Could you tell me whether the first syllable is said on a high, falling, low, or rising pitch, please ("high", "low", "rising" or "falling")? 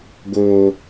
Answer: low